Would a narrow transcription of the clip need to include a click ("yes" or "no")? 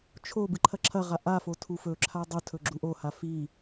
yes